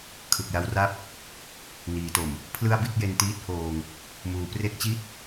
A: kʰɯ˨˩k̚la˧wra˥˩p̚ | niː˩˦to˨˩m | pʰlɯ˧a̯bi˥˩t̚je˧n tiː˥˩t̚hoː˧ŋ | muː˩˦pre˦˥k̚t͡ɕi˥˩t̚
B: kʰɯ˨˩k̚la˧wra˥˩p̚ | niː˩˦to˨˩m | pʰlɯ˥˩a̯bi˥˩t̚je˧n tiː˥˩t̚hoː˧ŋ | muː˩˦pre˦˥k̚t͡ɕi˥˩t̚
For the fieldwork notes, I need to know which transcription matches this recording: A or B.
B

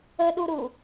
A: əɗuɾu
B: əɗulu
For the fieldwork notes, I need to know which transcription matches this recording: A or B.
A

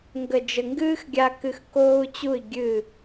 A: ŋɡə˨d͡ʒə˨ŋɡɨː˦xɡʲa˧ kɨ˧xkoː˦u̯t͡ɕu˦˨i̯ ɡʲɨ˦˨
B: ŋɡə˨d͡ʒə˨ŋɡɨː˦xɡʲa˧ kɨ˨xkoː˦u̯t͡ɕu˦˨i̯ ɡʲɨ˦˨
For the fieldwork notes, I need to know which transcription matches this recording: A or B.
A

